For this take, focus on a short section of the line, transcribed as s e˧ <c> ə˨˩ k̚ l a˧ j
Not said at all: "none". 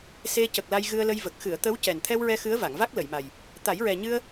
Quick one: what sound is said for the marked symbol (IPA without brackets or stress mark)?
c